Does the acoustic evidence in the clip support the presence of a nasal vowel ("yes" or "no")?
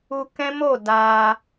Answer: yes